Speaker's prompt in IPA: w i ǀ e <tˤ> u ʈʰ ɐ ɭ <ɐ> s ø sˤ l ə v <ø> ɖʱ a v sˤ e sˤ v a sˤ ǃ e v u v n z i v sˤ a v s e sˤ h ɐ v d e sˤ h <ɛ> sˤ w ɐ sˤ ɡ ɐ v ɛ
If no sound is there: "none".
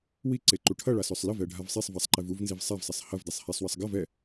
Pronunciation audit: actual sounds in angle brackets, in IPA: ǃ, a, ɛ, ɛ

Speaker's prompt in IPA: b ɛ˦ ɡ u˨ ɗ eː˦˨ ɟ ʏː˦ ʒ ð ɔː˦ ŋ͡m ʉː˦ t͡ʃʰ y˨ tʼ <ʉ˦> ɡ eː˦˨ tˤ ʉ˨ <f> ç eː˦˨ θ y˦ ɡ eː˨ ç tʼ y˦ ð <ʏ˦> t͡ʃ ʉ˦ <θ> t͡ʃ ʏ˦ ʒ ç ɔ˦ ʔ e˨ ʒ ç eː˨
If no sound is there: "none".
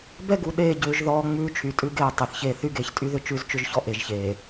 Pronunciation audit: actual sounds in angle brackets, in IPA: ʉ˦, θ, ʏ˦, z

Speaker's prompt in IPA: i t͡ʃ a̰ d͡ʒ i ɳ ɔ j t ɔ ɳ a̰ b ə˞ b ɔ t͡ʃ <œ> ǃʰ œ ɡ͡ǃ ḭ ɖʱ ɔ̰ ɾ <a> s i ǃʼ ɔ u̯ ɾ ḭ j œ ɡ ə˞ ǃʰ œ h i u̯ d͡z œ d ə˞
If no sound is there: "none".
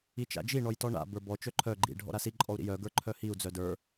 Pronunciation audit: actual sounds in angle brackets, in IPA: œ, a

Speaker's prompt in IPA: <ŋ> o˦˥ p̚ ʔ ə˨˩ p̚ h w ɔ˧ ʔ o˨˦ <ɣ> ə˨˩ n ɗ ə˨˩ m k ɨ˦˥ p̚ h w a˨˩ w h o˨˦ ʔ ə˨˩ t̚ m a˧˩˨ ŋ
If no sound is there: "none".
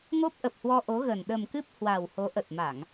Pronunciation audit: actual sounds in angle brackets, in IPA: ŋ, ɣ

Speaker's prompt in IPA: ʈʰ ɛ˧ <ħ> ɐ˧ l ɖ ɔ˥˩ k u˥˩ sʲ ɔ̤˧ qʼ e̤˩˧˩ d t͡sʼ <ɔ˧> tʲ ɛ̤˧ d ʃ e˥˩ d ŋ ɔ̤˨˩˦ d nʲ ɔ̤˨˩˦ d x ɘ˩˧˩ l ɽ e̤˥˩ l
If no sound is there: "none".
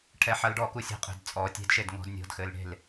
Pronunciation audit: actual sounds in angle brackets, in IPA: ħ, ɔ˨˩˦

